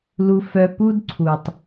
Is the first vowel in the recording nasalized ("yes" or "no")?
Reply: no